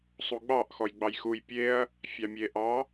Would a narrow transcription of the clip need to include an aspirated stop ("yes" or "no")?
no